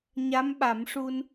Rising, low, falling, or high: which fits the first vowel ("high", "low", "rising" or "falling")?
rising